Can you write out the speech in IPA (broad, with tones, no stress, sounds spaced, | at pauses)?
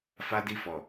f a˦ d i˦˨ f ɔ˨